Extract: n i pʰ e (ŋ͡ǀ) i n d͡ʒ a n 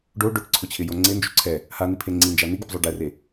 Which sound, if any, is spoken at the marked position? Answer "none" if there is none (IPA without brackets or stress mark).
ŋ͡ǀ